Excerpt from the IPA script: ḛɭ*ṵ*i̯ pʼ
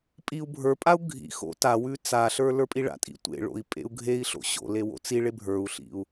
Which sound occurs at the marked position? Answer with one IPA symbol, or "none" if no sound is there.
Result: o̰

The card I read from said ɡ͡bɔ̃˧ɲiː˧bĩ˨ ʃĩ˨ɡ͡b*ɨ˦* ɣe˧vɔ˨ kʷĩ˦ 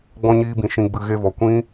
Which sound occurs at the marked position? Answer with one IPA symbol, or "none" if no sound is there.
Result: ɨ˨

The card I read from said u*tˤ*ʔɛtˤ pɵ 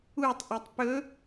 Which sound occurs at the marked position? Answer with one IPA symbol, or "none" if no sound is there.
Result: tˤ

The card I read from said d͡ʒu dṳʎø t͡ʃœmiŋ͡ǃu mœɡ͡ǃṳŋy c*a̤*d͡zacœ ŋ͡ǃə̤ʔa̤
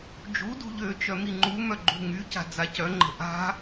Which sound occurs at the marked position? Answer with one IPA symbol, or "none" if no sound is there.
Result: a̤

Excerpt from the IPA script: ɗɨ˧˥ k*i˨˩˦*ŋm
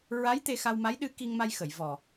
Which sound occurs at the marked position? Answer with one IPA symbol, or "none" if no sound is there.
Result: i˧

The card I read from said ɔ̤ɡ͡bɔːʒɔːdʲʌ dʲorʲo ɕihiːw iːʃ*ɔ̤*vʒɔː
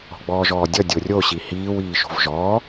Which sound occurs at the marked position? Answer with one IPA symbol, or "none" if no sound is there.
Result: o̤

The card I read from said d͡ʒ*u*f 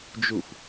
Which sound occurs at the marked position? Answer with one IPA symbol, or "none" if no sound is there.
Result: u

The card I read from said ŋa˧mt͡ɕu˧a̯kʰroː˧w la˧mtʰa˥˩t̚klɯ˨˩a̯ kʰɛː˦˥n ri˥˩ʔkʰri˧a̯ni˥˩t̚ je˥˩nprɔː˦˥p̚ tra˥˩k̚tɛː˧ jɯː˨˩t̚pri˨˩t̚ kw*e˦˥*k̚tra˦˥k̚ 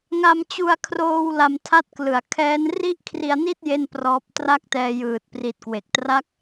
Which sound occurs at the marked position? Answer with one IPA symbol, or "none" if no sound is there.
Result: e˨˩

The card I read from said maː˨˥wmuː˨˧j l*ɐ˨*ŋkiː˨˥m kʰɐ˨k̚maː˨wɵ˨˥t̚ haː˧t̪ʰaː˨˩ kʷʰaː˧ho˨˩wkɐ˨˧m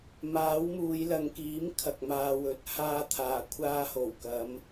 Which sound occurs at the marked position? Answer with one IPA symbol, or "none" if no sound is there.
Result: ɐ˨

